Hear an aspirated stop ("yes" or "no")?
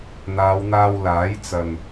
no